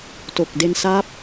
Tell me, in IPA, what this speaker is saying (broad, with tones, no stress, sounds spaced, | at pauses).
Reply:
t o˨˩ k̚ d e˧ n s a˦˥ p̚